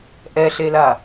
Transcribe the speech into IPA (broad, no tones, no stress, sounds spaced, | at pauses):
ʔ ɛ ɬ e l a